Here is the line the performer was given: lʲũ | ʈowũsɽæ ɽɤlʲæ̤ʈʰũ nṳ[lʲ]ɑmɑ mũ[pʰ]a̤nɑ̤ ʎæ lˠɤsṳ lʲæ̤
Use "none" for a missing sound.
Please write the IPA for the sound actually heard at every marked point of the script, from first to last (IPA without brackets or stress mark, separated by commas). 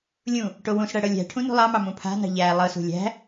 lˠ, pʰ